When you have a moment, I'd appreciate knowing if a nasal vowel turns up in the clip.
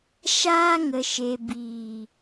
no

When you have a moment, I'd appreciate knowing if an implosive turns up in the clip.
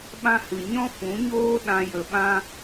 yes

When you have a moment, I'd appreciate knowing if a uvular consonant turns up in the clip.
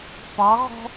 yes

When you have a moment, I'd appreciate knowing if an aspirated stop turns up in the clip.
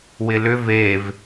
no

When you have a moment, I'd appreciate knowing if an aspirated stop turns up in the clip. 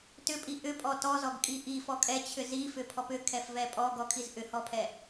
yes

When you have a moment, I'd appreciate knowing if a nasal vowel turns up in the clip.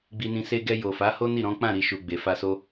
yes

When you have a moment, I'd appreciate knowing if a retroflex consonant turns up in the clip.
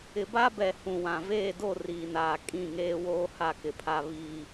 no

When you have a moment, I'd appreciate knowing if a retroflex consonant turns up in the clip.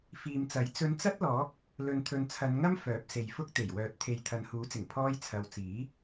no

